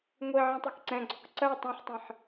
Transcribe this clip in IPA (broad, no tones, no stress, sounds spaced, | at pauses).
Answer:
ŋʷ i ʕ ɛ̃ tˤ ɛ k ǀ ɛ̃ ɡ͡ǀ ɔ k ǀ ɜ tˤ ɛ̃ ħ tˤ ĩ ħ